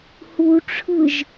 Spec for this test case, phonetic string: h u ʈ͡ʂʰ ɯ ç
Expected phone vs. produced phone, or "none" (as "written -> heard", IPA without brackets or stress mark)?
ç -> ʒ